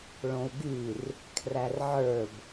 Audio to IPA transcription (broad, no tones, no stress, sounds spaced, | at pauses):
ɭ õ u̯ ɡ y r | kʰ r æ r ʕ ə˞ b